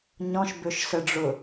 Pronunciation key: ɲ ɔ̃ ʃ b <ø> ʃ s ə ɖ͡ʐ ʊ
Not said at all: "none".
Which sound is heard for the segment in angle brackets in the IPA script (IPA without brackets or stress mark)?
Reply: ø